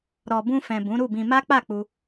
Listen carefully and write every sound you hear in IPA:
ɾ ɔ˨ b ũ˧ f ɛ̃˨ b ũ˨˦ ɾ u˦˨ b ĩ˧ m a˦ k͡p a˦˨ k͡p u˧

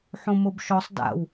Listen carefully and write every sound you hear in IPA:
ħ õ m o b ʃ ɔ sˤ d a̰ w

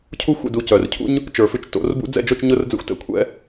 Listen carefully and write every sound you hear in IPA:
cʰ u˦ xʷ ɛ̰˦˨ d u˨ c œ˨ r cʰ ṵ˦ ɲ | t͡ʃ ə˞˨ f ʉ˧ t͡ʃ t o̰˨˦ r b ṵ˦ d͡z ɛ̰˦˨ d͡ʒ o˦˨ t͡ʃ ɲ ʊ˧ r d͡z ɛ̰˧ xʷ t ɛ̰˦ kʷʰ ɛ̰˦

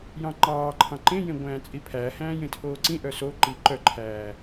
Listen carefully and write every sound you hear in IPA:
j ɑ̃ ŋ͡ǃ ɑː ǃʰ ɑ̃ ǃ ẽ j ẽ ɡʷ æ̃ː t͡sʼ i pʰ æ h æ̃ː j ẽ tʰ oː ǀ ĩ ʔ œ s o ǃ i ǃ œ ǃʰ æː

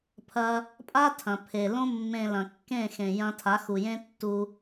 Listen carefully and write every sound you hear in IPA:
pʰ ɐ˧ | pʼ a˦ tʰ ɐ̃˨ pʰ e˨ l õ˧ mː ẽ˨ l ɐ̃˨ kː ẽ˦˨ x ẽ˨ j ɐ̃˧ tʰ a˨˦ x u˨ j ẽ˦ tː u˧

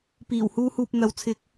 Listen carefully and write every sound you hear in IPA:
p iː˨˩ w h uː˧ h uː˨ p̚ n̪ ɐ˨˥ w t͡sʰ ɪ˨˥ k̚

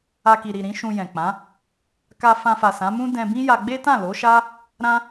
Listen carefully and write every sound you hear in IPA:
a˧ k i˨ ɾ i˨ ɾ ĩ˨˦ ʃ ũ˧ j ɛ̃˨ k͡p ã˨˦ | k a˧ f ã˧ f a˨ s ã˨˦ m ũ˦ d ɛ̃˧ b ĩ˦ j a˧ ɡ͡b e˦ t ã˦˨ l o˨˦ ʃ a˦ | ɾ ã˦

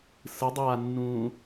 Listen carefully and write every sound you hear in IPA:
s ɯ dˤ aː nː ũː

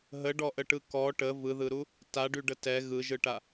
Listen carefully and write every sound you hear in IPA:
ɦ ə ɖ ɔ ʔ ə ʈ ɯ k ɔ ʈ ə v ɯ ð ɯ ɾ u | t a ɖ y ɖ ə t ɛ ɣ ɯ ʒ ɯ ʈ a

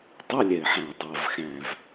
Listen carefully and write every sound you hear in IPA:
tˤ ɛ˧˥˧ lʲ ɛ˨˩ ɪ̯ ħ æ̃˨˩ ʊ̯ dˤ a˨˩ v x æ̃˨˩ v

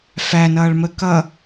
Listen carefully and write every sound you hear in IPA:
f æ n ʌː ɭ m ə k ʌ

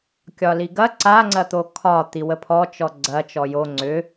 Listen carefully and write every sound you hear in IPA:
kʲ ɒ l i ɡ ɐ ǀ a ŋ͡ǀ ɐ t̪ o kʰ ɒ t̪ i w ə pʰ ɔ t͡ʃ ɔ ɡ͡ǀ ɐ t͡ʃ ɔ j o ŋ͡ǀ ʏ

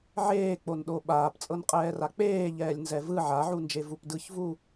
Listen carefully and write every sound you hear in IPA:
ʕ eː k͡p o n ɗ o ɓ aː p t͡sʼ ɤ n qʼ ɛː r a k͡p eː ʎ ɛː lʲ n z ɛ v ɯ ʕ a ʕ u n d͡ʒ e v u p d ɯ ç v u

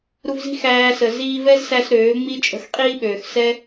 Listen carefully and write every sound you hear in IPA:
ɾ u˧ v z i̤˦ x æː˧ s ə˨ z iː˧ v ɛ˦ z s æ˧ s ɾ øː˨˦ ŋ͡m i˦ t͡ʃʼ ə̤˧ x qʼ iː˦ ɓ øː˨ x s ɛ˦

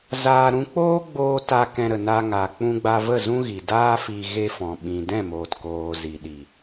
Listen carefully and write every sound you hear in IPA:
z aː˧ ɾ ũ˧ k͡p oː˦ ɡ͡b oː˧ t a˧ k ɛ̃˧ ɾ ə˨ n a˧ ŋ aː˨ k͡p ũ˧ ɡ͡b a˧ v ə˦˨ z ũ˦ ɣ i˨ d aː˦ f iː˧ ɣ e˧ f ɔ̃˨ ɓ ĩ˨ d ɛ̃˦˨ m oː˨ t k oː˨ z i˨ ɗ i˨

